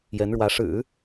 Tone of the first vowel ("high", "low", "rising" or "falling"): rising